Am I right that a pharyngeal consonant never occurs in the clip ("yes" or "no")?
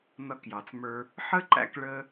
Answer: no